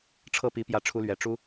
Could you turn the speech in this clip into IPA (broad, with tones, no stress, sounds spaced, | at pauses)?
ʈ͡ʂʰ ɤ˥˩ p i˧˥ p j ä˥˩ ʈ͡ʂʰ u˥ l ɥ ɛ˨˩ ʈ͡ʂ u˥